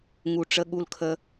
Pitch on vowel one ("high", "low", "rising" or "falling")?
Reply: low